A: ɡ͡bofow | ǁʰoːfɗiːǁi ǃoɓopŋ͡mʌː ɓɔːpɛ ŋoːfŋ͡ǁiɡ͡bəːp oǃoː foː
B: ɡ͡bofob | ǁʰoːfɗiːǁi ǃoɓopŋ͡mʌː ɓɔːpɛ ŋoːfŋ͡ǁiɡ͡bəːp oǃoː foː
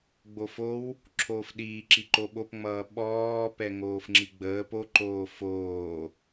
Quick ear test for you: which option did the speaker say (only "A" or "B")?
A